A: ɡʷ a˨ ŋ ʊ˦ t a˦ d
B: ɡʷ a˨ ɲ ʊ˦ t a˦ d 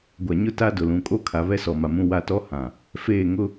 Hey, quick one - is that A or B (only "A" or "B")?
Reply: B